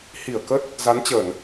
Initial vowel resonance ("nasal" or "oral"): oral